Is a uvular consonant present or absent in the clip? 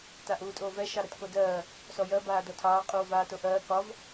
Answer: present